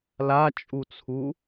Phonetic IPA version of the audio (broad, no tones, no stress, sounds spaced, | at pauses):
l a t͡ʃʼ u t͡sʰ u